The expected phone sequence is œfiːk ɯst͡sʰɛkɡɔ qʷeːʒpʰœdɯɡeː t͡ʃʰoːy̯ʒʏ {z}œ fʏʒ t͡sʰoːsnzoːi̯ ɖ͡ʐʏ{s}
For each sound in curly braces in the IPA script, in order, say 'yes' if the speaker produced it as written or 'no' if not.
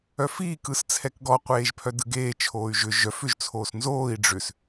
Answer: no, yes

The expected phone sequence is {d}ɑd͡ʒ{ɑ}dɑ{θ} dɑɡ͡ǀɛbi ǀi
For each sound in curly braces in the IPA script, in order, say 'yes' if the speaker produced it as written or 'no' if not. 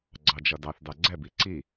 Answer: no, no, yes

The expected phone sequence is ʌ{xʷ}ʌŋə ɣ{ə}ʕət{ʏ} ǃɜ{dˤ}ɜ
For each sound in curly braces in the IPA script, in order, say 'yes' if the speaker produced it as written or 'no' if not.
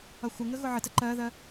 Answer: yes, no, no, no

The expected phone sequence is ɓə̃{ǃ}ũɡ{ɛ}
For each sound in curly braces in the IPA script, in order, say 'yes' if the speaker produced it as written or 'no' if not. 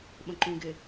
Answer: yes, no

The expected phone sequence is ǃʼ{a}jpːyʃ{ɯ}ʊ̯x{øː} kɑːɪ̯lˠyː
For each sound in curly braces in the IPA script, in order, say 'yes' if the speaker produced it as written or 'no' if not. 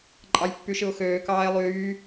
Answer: no, yes, yes

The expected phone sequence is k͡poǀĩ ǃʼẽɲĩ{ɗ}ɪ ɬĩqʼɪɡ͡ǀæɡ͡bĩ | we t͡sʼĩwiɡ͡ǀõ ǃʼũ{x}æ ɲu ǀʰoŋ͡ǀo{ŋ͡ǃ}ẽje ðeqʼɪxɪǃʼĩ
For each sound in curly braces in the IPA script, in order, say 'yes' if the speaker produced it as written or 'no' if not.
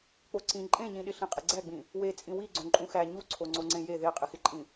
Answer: yes, yes, no

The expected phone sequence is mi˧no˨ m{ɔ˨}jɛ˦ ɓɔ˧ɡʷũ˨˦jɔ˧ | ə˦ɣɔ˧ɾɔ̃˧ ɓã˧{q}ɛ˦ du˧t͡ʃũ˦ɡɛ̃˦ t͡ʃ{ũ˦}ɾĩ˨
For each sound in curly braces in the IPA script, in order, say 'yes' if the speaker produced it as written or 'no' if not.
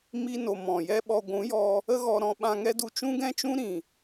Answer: no, no, yes

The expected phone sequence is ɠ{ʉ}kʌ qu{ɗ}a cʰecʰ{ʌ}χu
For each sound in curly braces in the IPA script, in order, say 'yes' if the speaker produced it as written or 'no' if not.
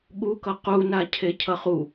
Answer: no, no, yes

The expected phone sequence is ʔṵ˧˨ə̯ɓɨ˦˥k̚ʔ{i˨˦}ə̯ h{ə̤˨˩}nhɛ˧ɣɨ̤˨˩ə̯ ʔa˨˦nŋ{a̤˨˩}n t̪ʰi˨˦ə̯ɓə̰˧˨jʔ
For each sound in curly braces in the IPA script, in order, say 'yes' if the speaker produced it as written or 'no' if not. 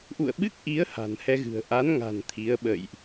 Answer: yes, no, yes

